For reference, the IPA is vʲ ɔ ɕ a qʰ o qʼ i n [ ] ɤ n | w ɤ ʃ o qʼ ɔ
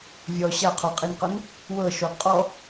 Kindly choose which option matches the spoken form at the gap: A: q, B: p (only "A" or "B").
A